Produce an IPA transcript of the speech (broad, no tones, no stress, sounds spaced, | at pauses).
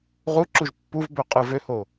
ʁ u ǁ u ʒ pː u v b ø qʼ ɯ v ø h o